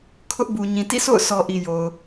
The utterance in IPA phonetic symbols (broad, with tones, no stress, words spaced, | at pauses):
kʰʊ˦ʔbu˨ ɲĩ˨tḭ˦˨ sʰo̰˦˨ʊ̯ sʰɔ˨ ʔi˨jo˨ʊ̯